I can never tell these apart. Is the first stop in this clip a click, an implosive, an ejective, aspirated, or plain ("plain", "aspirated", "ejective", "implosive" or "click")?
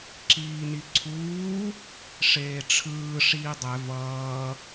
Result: click